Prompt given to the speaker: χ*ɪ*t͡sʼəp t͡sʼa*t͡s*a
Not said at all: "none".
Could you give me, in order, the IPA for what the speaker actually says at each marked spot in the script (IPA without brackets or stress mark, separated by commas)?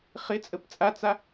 ɪ, t͡s